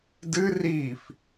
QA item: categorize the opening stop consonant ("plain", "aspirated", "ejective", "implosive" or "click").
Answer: plain